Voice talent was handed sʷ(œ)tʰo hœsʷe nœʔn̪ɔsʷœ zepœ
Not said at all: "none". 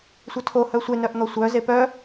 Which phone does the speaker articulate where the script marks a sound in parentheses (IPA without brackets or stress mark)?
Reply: œ